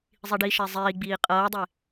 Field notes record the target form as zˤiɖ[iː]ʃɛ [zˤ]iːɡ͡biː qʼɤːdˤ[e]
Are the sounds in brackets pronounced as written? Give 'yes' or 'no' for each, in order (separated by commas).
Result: no, yes, yes